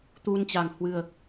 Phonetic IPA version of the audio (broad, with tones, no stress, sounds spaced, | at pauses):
t̪ u˧ n t͡ɕ a˨˩ ŋ h w ɨ˨˩ ə̯